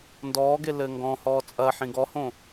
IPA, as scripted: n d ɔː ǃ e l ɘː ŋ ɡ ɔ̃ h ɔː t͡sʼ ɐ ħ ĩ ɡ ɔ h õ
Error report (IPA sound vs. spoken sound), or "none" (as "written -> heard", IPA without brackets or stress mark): ǃ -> ɡ